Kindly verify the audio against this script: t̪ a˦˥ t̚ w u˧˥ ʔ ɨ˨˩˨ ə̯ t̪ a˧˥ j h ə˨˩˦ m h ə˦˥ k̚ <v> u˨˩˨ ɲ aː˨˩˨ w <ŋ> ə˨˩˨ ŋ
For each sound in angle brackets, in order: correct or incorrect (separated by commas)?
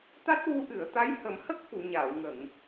incorrect, correct